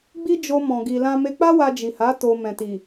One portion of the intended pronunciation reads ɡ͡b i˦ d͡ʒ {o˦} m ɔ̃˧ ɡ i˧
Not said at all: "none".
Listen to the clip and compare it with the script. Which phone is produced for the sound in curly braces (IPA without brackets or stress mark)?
o˦